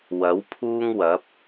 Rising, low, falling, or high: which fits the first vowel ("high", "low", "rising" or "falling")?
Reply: rising